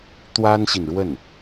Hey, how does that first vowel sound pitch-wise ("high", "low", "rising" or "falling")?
high